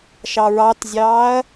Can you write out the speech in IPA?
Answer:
ʃɑɹɑtzʲɑːɐ̯

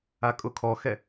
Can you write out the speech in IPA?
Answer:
akʼʊkʰɔxɛ

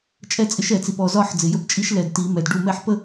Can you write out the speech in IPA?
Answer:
t͡ʃʼɛ˥˧t͡sʼɪ˧˥ʃ ɛ˨˩˦t͡si˨pɔ˨ zɒ˥˧ħ d͡zɪ˨jə˧˥pt͡ʃʼi˧˥ʃ lɛ˨dti˨˩˦mɛ˨d ɖu˥˩ mɛ˥˩ħpə˥˧

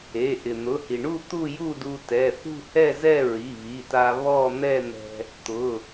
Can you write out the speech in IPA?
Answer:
e˩˧˩ ʔɪ˩n̪ʊ˩˧˩hi˩ɳu˥˧ t̪u˥˧ju˥˧du˧ tɛ˩˧˩ θṳ˥˧hɛ˥˧zɛ˥˧ ɹi˩˧˩βi˩˧˩ta˧ βɔ˥˧ n̪ɛ˥˧n̪ɛ̤˧ | t̪ʊ˩˧˩

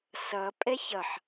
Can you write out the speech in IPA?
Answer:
sʌ pʼɛçʌħ

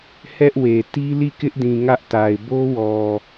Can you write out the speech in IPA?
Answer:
hɛ˦ʔwe˨ ti˦li˦˨kɪ˦ʔdĩ˨ ŋä˦ʔta˨ɪ̯ bo˦wɔ˨

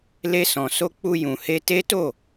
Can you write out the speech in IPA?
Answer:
le˧sɔ̃˨ so˧k͡pu˧ jũ˨he˧ te˦to˦˨

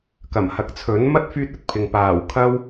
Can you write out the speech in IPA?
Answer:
kɐ˨˩m hɐ˨k̚t͡sʰɵ˨˥n mɐ˥t̚ fyː˥t̚ɵ˥t̚pʰɪ˨ŋ paː˨˩w kʰɐ˥w

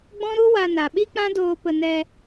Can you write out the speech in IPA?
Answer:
ɡ͡bɔ̃˦ɾu˦wa˧ na˨ɓi˦k͡pã˦doː˧ pə˧nɛ˧

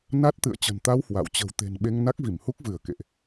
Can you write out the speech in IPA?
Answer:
na˦˥t̚t̪ɨ̰˧˨ə̯ t͡ɕə̤˨˩nt̪a˧w hwa̰˧˨w t͡ɕə̤˨˩wt̪e̤˨˩n ɓe˧ŋna˦˥k̚vi˧˩m hu˦˥k̚vɨ˧˩ə̯ kḛ˧˨ʔ

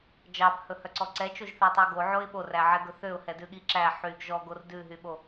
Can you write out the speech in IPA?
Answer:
d͡ʒɑbhɵhœǀɔ ǀɛt͡ʃoʒθɛtˤi ɡoʕoɪ̯ ɓoræʕɛɡɵ θøʊ̯hɛdʉɠi ǁæ ħyɡ ʒɔɡor dʉɦyɓo

